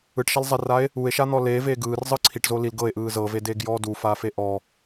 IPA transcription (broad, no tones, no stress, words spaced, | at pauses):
ɯʈʃalzˤɛrae̯ | ue̯ʃan̪ɔ leveː ɡɯːrzˤɯ ǀʰiʈzo lil ɡɤe̯ʔɯː zɤvedeːɡjɔː dufaːfe ʔɔ